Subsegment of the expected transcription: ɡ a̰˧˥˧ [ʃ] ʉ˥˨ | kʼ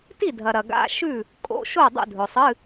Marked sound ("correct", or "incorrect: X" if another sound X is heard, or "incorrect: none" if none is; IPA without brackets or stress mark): correct